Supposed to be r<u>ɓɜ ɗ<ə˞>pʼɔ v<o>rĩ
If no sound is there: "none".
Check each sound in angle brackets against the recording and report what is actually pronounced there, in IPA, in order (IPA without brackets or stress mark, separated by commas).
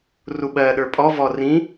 u, ə˞, ɔ